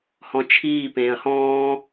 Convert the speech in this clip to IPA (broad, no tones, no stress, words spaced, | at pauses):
hɔ̃t͡ʃʰiː pẽːɐ̯hɔ̃ː